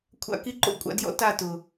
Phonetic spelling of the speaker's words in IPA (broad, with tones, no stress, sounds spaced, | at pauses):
kʷʰ a̰˦ k i˧ ǃ o̰˦˨ kʷʼ a̰˧ d j ɔ̰˦ t a˦˨ t ʊ˨